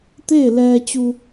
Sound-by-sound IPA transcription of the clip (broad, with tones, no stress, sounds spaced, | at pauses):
t̪ eː˥˨ l ɛː˧ t͡ɕ u˧